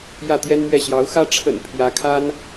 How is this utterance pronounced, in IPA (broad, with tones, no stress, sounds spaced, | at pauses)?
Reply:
j ä˥˩ t̪ j ɛ˥ n m ɥ ɛ˥˩ ɕ j ɑ˧˥ ʊ̯ x ä˥ ʈ͡ʂʰ ə̰˨˩ n pʰ j ä˧˥ kʰ a˥ n